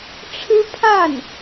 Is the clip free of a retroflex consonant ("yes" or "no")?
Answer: no